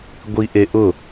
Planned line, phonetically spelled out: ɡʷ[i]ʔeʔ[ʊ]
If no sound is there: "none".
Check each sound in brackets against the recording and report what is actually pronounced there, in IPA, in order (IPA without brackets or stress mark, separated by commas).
i, ʊ